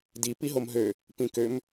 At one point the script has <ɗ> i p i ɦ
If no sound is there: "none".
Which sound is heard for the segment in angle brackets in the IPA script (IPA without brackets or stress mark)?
d